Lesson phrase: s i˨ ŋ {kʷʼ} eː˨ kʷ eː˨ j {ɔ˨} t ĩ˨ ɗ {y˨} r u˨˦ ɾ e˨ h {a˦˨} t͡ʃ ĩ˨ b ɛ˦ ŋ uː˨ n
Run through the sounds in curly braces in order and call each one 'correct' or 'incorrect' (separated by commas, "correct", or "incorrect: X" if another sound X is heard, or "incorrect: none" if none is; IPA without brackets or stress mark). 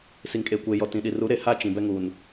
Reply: incorrect: kʼ, correct, incorrect: i˨, correct